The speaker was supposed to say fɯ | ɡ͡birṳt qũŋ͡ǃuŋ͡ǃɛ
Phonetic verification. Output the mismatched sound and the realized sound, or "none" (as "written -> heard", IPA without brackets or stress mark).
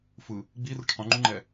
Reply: t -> ʈ